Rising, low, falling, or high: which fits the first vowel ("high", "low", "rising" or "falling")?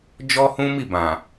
high